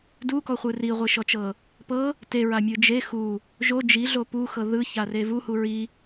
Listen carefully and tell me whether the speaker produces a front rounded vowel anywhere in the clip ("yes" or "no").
no